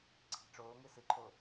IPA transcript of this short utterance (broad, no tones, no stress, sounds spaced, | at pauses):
ǀʰ i̤ ʈ͡ʂ oː ŋ ɨ s ɨ ǃʰ o